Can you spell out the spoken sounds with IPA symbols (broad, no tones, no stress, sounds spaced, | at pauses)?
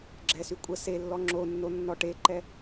ɡ͡ǁ ɛ s y kʷʼ ə s e lː ɔ ŋ͡ǁ o nː o nː ɔ ʈ e ǃ ɛ